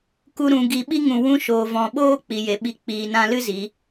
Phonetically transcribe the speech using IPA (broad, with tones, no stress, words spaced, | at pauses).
ku˦ɾũ˧ɡi˧ ɓi˦ŋũ˨ wũ˦ʃoː˨vɔ̃˨ ɓoː˦ k͡pi˨je˨ɓi˧ k͡piː˨nã˧lɨ˦ zi˨˦